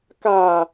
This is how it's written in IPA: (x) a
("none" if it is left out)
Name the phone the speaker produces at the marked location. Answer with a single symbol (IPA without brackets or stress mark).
k